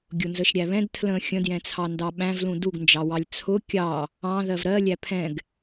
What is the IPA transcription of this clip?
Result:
ɡʲ ʊ n z ə ʃ ɾʲ æ β ɛ̃ d tʰ l ə̃ xʲ ə̃ d j ɛ̃ t͡sʰ ɑ n d ɑ ɓ æ̃ v l ũ d u ɡ n d͡ʒ ɑ w ɑ lʲ t͡sʰ ʊ kʲ ɑ | ɑ̃ ð ɜ v ɾ ɜ lʲ æ pʰ ɛ̃ ɡ

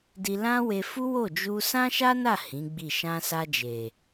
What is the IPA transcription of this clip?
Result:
d i˧ l ã˦ w e˧ f u˦ w o˦˨ d͡ʒ u˧ s ã˦ ʃ a˦ n a˦˨ h ĩ˨˦ ɡ͡b i˦˨ ʃ ã˧ s a˧ d͡ʒ e˨

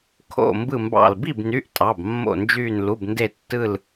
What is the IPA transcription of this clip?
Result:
kʰ o̰˧˩ m b ɯ˧˩ m b ɑ̰˧˩ l b i˥˩ b n y˩˧˩ ʔ tʼ ɑ˩˧˩ b mː o̰˧˩ n d͡ʒ yː˧˩ n l u˩˧˩ b n d e˧˩ tː ɯ˧˩ l

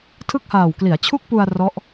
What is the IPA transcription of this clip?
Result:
tʰ ɯ˥˩ k̚ h aː˨˩ w k l i˩˦ a̯ t͡ɕʰ u˥˩ k̚ p u˧ a̯ r ɔ˦˥ ʔ

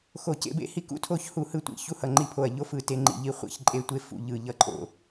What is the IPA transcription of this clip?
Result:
x o˦˨ c ḛ˦ b ḛ˦ h i˦ k ṵ˦˨ tʰ o˦˨ ç h u˦˨ h ɯ˦˨ tʷ ḭ˦˨ ç u˦ h ʌ˦˨ ŋ͡ǃ i˦˨ pʰ o˦˨ ɐ̯ ʎ o˦ f ɯ˦˨ t e˦ ŋ͡ǃ ḭ˦˨ ʎ i˦ χʷ ḭ˦ ç ǃʼ e˦ tʷ e˦ f ṵ˦˨ ʎ ɯ˦˨ ʎ ʌ˦ ǃʼ o̰˦

